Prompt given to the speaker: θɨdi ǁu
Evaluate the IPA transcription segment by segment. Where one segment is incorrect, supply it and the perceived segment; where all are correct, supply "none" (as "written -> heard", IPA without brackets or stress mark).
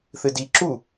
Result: none